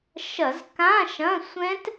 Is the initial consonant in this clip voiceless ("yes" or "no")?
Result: yes